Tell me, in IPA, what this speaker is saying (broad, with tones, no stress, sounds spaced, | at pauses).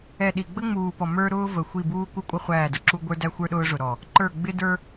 ɛ˨ ɗ i˨ ɡ͡b ə˦ ŋ͡m uː˨ p ɔ˨ m ə˞˦ ɾ ʊː˦ v ə˨ xʷ i˦˨ b uː˦ k u˦ kʷʼ ʌ˦ χʷ æː˦˨ d ʊ˨ ǁ u˦ ɡʷ ə˞˦ d æ˦ xʷ ə˞˦ ɗ ʊː˦ ʐ ʊ˨ ɾ ɔ˨ | ǃ ə˞˦˨ ɡ͡b ɪ˦ d ə˞˦